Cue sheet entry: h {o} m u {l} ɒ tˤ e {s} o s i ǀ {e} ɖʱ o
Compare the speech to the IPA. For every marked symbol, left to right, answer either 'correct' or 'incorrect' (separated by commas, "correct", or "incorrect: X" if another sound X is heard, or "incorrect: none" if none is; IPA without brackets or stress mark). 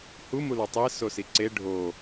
incorrect: u, correct, correct, correct